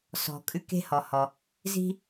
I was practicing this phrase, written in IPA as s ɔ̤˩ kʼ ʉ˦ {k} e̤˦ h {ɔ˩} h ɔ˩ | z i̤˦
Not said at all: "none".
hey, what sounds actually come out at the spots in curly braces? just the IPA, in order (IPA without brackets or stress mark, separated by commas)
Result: k, ɔ˩